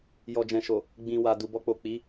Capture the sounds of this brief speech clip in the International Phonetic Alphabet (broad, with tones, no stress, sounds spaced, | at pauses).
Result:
j ɔ˨ d͡ʒ ɛ̃˨ ʃ o˨ | ɡ͡b ĩ˨ w a˨ d u˨ b ɔ˧ k͡p o˨ k͡p i˨˦